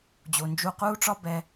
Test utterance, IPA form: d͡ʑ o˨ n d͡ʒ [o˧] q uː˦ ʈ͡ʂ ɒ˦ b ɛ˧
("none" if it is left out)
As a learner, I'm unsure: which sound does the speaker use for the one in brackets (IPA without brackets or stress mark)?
u˧